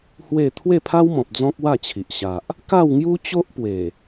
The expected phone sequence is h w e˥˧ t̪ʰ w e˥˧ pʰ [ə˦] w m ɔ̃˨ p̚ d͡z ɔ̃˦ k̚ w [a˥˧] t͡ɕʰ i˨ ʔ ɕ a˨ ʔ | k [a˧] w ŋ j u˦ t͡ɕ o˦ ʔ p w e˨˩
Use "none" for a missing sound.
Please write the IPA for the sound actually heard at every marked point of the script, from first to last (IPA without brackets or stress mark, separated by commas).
a˦, a˥˧, a˥˧